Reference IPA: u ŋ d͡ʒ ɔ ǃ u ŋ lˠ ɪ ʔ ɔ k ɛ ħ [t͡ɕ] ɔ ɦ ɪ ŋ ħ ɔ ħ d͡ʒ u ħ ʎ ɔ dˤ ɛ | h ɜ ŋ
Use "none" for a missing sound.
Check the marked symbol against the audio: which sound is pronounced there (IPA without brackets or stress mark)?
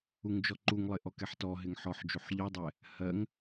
t